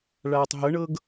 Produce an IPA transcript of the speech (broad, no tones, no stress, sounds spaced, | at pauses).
ɭ aː tˤ ɦ ɤ ɳ ɤ ɡ